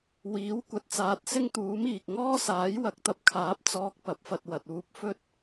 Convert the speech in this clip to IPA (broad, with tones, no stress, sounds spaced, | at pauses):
w iː˨˥ w kʷ ɐ˨ t̚ t͡s aː˨˥ t̚ s ɪ˥ ŋ t̪ uː˨˥ m iː˨ k̚ ŋ ɔː˥ s aː˨˥ j w ɐ˨˥ k̚ t̪ ɐ˨˥ p̚ kʰ aː˨˥ p̚ t͡s ɔː˧ k̚ p ɐ˨˥ p̚ f ɐ˧ t̚ w ɐ˨ t̚ uː˨˥ p̚ f ɵ˥ t̚